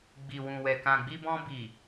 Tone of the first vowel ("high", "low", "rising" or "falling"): low